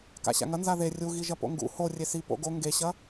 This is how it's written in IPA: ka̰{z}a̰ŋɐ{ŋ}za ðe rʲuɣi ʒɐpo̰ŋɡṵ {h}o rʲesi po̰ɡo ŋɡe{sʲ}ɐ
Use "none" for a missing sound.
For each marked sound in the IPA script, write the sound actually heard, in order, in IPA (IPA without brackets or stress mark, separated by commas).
ɕ, n, h, ɕ